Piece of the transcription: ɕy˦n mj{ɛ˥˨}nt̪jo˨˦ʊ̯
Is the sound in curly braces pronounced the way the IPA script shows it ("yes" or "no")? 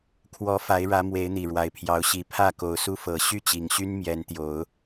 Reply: no